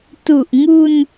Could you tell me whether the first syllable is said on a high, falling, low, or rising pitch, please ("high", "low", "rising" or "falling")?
low